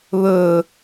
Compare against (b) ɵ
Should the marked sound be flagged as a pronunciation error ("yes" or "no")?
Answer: yes